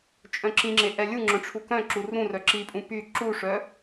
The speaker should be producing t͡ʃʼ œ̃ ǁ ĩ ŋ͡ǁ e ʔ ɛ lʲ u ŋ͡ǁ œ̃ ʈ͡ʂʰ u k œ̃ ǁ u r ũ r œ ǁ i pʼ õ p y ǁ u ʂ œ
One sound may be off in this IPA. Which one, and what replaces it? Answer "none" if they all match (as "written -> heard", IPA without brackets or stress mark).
õ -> ũ